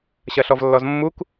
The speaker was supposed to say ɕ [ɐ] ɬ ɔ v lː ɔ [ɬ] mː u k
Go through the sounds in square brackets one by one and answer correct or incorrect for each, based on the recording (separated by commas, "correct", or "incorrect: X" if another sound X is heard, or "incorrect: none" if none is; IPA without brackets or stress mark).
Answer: correct, incorrect: z